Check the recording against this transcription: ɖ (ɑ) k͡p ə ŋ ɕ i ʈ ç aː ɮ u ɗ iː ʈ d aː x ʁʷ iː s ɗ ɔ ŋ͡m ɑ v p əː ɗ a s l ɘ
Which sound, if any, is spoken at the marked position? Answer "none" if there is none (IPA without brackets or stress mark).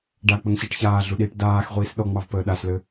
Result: a